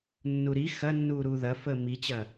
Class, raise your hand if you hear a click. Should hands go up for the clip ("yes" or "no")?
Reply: no